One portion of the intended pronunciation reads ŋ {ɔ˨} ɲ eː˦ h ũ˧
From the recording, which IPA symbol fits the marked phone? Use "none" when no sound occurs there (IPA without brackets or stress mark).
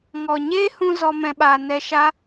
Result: ɔ˨